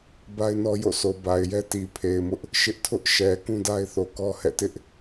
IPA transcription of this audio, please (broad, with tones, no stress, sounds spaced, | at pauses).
b a˦ ɪ̯ n ɔ˦ j o̰˦˨ sʰ o˨ b a˨ ɪ̯ j ɛ˦ t i˨ pʰ e˨ ɪ̯ m ʊ˦ ʔ | ʃ ɪ˦ ʔ tʰ ʊ˦ ʔ ʃ ɛ˨ k ũ˦ d a˦ ɪ̯ θ o˨ k ɔ˦ h ɛ̰˦˨ t ɪ˦ ʔ